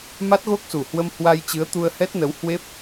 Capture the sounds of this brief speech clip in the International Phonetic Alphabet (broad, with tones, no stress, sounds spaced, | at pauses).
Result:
m a˦˥ t̚ ɣ o˦˥ k̚ s u˨˩ h w ə˧ m h w a˧ j t͡ɕ ɨ˨˦ ə̯ t̪ u˧ ə̯ h ɛ˦˥ t̚ n ə˨˦ w h w e˦˥ p̚